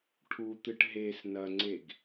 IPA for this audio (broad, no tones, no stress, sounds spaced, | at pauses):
ʈʰ u t̪ ɨ ʈ ɦ e s n ɐ ŋ͡ǀ e ɡ